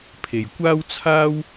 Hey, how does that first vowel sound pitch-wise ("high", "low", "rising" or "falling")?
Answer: low